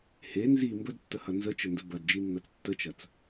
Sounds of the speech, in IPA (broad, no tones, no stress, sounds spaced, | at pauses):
h e n z i m b ə d tː ə h ɐ n z ə t͡ʃ ə n d ə b ɐ d d͡ʒ i nː ɐ t͡s tː ə t͡ʃ ɐ t͡s